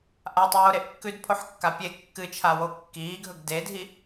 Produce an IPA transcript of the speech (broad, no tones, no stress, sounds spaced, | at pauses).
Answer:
ʔ a tˤ oː ɾ e ʔ kː ʉ d pʰ o ħ kː a pʲ e kː ɨ t͡ʃʰ a w o kː iː ɡʱ ɵ ɡ d e dʱ i